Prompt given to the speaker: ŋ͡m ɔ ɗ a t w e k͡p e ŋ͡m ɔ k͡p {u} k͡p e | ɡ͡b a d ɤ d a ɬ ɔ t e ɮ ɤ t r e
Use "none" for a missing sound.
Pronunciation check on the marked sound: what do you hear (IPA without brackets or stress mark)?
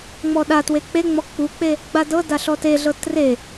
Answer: u